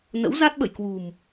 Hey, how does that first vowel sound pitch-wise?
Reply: rising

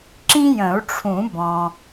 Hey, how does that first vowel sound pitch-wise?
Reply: high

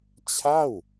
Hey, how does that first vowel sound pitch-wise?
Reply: falling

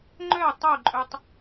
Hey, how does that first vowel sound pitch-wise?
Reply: falling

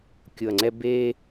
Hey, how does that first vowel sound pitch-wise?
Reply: low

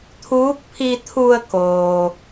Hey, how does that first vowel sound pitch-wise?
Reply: rising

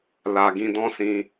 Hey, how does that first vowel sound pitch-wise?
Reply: low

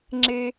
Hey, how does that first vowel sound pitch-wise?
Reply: high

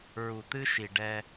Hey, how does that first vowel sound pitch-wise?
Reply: low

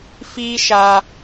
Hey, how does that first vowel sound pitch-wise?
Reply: high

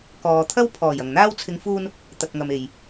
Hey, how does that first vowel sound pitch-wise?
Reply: low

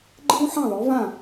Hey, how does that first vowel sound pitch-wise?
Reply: high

